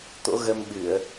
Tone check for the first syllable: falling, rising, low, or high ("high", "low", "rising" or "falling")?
rising